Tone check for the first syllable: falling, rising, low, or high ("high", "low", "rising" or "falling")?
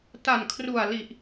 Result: low